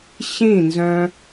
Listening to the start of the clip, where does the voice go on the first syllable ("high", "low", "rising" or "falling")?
falling